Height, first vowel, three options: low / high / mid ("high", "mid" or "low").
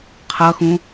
mid